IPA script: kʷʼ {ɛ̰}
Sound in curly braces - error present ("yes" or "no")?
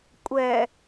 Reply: yes